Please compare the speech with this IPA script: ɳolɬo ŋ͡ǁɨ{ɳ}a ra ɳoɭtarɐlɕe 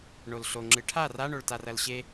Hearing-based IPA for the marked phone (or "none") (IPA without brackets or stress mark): ʈʰ